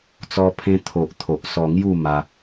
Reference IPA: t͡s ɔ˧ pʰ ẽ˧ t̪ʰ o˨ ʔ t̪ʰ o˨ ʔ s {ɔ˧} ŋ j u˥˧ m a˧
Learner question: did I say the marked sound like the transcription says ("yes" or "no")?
yes